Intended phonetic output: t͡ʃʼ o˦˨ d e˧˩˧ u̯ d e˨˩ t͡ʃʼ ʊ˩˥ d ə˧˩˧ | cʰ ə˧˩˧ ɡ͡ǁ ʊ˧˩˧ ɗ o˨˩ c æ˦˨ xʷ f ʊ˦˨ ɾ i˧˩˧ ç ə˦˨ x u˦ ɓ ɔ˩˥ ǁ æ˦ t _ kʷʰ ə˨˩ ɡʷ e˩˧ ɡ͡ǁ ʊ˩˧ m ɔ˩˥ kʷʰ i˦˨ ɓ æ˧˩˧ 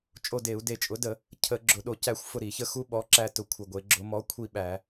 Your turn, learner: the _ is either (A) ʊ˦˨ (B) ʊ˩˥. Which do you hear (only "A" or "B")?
B